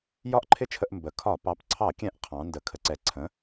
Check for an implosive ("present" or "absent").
absent